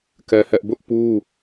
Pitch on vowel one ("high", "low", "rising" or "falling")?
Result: high